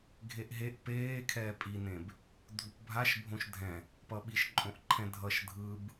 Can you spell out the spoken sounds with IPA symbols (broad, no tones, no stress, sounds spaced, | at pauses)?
ɡʱ e ʔ ɦ e ʔ p eː kʰ ɛː pʼ i n ẽ b | dʱ u p bʱ a ʃ bʱ õ ʃ dʱ ɛ̃ | p ʌ ɓ i ʃ ǃʼ õ ʔ ǃʰ ɛ̃ dʱ ʌ ʃ dʱ ɯ b